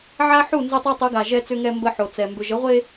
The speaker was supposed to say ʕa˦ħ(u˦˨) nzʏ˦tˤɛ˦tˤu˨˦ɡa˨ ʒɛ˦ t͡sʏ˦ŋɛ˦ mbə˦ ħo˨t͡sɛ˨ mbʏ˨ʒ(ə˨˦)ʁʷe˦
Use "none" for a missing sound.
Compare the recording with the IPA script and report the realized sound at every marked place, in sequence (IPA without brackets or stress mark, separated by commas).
u˦˨, ə˨˦